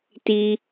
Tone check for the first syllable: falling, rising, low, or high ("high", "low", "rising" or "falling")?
high